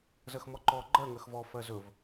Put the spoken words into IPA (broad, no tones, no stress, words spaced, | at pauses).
zɜxmɔǃɔ ɡ͡ǃɜ ŋɜxvɔ fɜzɵv